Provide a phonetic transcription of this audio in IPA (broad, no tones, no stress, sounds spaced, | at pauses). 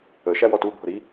ə ʃ æ w ɔ t u bʱ ʊ ɾ i